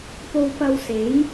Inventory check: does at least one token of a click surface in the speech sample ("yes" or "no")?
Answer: no